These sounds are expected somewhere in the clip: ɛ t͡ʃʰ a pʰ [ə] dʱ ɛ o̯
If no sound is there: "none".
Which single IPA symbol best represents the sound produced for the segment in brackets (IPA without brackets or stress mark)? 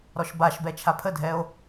ə